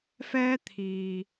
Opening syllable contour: high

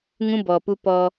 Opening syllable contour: high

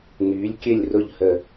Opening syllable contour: rising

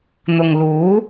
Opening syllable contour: low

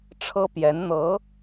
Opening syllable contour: high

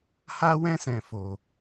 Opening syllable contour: high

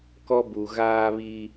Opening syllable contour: high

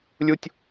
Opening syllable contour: high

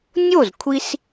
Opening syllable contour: falling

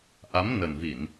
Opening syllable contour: rising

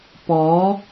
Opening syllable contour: rising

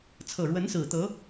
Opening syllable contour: low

